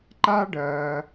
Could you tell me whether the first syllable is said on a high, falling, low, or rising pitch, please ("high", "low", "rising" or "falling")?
high